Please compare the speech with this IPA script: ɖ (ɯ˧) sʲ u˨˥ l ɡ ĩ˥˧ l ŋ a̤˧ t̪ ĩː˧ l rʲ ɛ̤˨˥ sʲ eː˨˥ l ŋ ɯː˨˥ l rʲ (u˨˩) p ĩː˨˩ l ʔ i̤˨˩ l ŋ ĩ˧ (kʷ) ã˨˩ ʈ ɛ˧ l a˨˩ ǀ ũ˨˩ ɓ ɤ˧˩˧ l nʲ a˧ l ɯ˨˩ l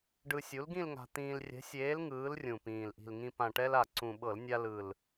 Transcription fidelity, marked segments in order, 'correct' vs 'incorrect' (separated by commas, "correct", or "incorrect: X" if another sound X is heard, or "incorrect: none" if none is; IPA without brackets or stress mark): correct, incorrect: ũ˨˩, incorrect: p